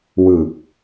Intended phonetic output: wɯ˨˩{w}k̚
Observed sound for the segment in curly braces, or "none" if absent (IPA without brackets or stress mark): none